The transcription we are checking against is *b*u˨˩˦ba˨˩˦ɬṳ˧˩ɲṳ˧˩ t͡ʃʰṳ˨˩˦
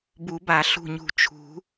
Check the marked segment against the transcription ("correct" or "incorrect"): correct